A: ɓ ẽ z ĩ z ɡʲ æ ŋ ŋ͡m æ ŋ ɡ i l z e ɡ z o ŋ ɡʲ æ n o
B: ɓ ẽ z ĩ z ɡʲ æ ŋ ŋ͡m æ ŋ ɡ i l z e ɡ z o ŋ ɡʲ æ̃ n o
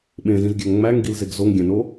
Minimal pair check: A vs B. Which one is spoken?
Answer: B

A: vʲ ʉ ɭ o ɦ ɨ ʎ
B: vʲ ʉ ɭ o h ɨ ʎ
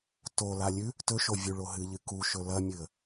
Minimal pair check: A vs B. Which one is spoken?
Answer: A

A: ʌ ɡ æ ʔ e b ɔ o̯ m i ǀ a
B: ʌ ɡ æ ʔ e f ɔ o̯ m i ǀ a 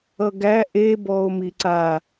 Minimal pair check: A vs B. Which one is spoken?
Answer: A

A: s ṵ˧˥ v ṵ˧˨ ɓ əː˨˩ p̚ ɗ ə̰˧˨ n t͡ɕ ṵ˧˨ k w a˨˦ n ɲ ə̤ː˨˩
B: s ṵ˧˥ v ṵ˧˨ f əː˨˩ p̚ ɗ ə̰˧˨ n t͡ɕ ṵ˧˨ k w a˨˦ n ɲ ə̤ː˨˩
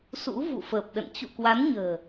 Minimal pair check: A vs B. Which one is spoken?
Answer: B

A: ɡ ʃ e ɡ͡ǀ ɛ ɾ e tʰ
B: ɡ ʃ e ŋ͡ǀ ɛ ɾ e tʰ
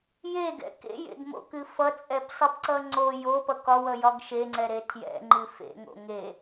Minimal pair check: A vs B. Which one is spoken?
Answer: B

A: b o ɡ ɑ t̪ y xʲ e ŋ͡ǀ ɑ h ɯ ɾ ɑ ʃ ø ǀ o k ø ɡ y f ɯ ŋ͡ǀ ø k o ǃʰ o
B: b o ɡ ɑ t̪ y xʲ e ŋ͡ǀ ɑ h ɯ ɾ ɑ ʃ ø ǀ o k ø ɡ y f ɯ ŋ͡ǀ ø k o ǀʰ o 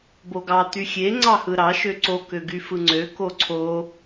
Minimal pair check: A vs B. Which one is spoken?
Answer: B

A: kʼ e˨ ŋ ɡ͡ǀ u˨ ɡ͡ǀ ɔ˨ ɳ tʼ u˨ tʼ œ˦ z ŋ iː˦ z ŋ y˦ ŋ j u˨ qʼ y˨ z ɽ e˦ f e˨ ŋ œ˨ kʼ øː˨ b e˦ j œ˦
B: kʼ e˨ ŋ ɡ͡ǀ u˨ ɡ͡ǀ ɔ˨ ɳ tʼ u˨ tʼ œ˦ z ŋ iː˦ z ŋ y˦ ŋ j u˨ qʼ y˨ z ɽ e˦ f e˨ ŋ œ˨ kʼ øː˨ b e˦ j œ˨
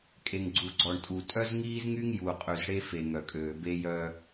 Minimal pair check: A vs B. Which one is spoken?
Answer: A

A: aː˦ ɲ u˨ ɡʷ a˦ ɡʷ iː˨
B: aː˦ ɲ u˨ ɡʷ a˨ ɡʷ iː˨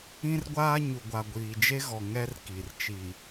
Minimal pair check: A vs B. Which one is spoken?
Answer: B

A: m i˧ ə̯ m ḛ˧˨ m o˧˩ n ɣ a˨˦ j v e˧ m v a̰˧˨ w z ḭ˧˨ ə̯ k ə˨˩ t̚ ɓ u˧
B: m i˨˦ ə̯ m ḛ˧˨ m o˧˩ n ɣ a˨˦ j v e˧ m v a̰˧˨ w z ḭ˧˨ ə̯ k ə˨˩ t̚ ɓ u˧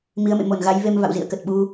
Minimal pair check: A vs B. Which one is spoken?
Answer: B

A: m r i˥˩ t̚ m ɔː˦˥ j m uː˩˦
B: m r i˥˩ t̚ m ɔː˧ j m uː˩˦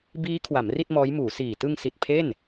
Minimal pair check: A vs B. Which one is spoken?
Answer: A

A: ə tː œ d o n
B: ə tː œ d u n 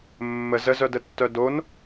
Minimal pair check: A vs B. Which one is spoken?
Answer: A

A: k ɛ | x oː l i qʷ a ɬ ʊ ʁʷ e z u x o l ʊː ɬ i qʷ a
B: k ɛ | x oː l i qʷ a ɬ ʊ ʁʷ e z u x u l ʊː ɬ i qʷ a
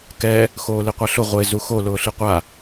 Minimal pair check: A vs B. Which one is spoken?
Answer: A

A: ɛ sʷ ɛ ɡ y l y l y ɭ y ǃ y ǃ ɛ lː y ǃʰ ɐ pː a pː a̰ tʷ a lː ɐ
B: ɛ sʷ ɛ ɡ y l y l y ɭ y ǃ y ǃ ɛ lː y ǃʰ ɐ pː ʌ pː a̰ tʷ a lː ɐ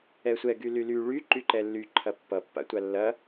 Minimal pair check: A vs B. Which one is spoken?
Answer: B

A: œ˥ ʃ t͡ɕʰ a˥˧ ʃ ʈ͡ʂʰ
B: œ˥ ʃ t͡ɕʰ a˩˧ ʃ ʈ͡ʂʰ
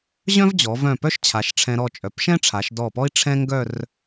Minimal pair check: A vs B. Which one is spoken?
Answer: B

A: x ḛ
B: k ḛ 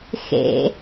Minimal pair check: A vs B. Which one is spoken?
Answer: A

